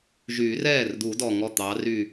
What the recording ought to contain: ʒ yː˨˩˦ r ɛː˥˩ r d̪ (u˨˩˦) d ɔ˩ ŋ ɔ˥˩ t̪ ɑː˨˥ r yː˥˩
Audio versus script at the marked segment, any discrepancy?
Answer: no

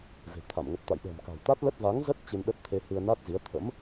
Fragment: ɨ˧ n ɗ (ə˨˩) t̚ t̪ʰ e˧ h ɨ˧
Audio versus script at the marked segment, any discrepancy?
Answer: yes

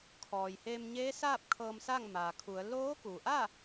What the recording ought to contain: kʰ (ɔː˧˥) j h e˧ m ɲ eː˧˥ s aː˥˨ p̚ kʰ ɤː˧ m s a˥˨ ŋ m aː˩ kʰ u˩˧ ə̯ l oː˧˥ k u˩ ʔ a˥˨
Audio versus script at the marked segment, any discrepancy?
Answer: yes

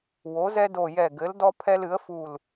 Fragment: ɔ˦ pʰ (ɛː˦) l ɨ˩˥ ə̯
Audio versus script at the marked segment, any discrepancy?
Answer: yes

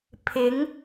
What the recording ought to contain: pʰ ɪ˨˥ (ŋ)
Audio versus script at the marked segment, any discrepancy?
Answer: no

